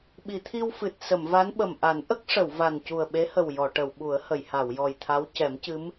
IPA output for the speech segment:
ɓi˨˩˨t̪ʰi˧wfɨ˨˩t̚ sə˨˩˨mva˧˥nɓə˨˩m ʔa˨˩˦n ʔə˦˥k̚ʂə˨˩˨w va˨˩ncu˨˩ə̯ɓe˧˥hə˨˩w jɔ˨˩˨ʈə˨˩˨w ɓu˨˩˦ə̯hə˨˩˨jha˨˩˨w jɔ˨˩jt̪ʰa˧˥wcɛ˨˩˦mcɨ˧˥m

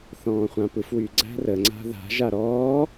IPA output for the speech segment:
θɔ̃ːχʷãpɯfwy ɡ͡ǀæ̤rəŋ͡ǀa̤ ða̤ʒa ɾɔː

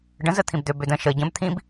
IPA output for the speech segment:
ɖə̃ zət̪ʰĩbd̪ø bødə̃ ʃə ɟə̃b t̪ʰĩb

